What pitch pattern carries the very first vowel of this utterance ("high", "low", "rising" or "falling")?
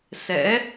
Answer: rising